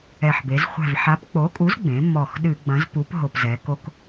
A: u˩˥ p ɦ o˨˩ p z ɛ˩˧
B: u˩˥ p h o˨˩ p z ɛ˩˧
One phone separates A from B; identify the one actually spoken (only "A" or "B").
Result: A